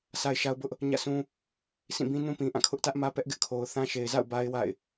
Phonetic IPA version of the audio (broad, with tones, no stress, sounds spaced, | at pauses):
sʰ a˦ ɪ̯ ʃ a˦ ʊ̯ b ʊ˦ ʔ | ɲ ä̰˦˨ sʰ ũ˦ | sʰ ĩ˦˨ b ĩ˦ n ũ˦ p ĩ˨ ʔ ã˦˨ kʰ ʊ˦ ʔ t ä˦ ʔ m ä˦ p ɛ˦ ʔ ɡ ɪ˦ ʔ kʰ o˨ ʊ̯ θ ã˦ ʃ e˨ ɪ̯ z a̰˦˨ ʊ̯ b a˦ ɪ̯ w a̰˦˨ ɪ̯